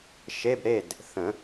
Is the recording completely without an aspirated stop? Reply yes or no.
yes